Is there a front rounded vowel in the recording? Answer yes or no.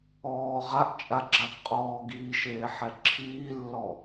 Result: no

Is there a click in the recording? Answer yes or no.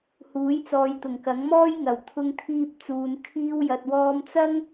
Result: no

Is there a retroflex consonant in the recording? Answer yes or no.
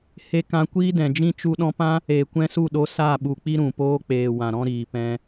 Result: no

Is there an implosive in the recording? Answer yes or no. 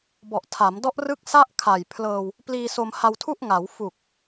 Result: no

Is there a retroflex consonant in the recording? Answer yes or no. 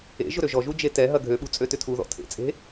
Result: no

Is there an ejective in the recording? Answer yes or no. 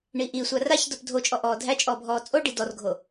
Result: yes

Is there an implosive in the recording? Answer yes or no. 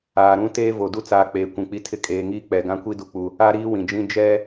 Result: no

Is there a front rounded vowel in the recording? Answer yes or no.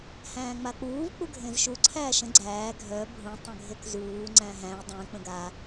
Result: yes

